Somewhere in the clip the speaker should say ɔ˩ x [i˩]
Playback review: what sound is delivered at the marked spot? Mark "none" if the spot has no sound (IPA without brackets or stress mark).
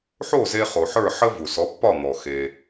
e˩